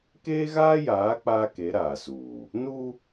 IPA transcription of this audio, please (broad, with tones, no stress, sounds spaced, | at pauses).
k eː˦ ɣ aː˦ j aː˨˦ k͡p aː˦ k e˨˦ ɾ aː˨ s uː˨ | n u˦